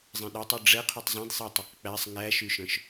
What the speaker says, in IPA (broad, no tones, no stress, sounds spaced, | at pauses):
zˤ ẽ ɗ æ tˤ u ɖ͡ʐ ɛ qʰ u tˤ zˤ ẽ d sˤ e tˤ ø q k͡p æ sˤ ŋ æ ʃ y ʃ œ̃ ʃ